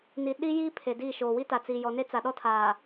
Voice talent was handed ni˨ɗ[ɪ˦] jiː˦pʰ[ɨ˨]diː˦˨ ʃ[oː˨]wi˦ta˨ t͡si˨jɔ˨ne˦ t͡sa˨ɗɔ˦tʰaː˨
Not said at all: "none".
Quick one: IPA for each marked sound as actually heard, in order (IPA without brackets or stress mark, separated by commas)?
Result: i˦, e˨, oː˨